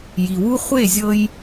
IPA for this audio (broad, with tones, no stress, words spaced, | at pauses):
ji˨wu˦ χʷe˦˨zʲɤ˦j